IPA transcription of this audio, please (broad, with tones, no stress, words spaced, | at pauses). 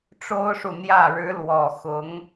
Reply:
ʈ͡ʂo˥ʊ̯ʂu˨n̪jä˥˩ ɻɻ̩˧˥ lwɔ˨˩ xʊ˧˥ŋ